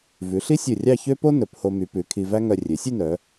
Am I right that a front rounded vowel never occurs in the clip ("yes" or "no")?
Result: no